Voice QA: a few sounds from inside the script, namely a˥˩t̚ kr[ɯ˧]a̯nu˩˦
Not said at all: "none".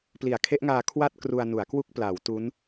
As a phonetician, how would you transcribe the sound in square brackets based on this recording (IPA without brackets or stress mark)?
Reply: u˧